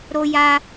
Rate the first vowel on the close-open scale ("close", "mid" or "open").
mid